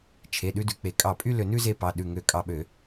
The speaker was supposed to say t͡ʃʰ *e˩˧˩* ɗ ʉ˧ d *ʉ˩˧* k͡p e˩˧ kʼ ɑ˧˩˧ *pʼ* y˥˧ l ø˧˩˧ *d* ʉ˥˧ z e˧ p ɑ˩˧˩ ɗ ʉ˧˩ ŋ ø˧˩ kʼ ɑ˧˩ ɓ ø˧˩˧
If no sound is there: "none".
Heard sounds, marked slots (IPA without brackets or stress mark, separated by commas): e˩˧˩, ʉ˩˧, pʼ, n